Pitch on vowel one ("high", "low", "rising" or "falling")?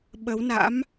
rising